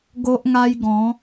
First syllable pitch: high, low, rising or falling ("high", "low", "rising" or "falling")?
high